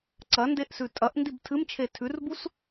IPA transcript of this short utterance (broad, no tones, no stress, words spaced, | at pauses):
ǀɐndeʔsʉ tʼɐʔndib tʰɨmt͡ʃʰe tʰʉrbus